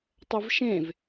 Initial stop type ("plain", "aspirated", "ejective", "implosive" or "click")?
plain